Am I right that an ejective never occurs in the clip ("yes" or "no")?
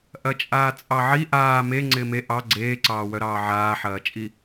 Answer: no